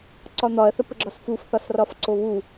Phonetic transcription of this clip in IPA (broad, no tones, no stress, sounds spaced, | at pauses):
ǀ ɒ n̪ ɒ ɐ̯ θ ə p ə ɡ͡ǁ ɒ s f u f θ ɒ s r ɒ f ǀ o β u